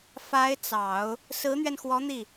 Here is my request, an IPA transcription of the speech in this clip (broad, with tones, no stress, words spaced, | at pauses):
fa˧˥ɪ̯ t͡sɑ˨˩˦ʊ̯ | sɹ̩˧˥n̪ɥɛ˧nxwɔ˧˥ n̪i˥˩